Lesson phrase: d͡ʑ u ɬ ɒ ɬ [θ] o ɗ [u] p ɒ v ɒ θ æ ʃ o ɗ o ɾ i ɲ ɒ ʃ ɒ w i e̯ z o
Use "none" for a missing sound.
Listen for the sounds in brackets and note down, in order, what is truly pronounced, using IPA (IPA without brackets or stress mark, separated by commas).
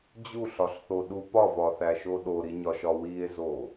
θ, u